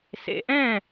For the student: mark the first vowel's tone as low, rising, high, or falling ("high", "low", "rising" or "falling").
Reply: low